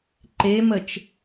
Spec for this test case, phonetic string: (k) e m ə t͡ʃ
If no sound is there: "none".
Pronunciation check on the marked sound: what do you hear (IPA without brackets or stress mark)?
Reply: ǃ